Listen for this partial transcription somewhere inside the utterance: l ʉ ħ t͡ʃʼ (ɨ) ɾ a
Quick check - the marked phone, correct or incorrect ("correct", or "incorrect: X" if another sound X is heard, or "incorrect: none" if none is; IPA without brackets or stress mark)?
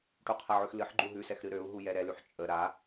incorrect: ə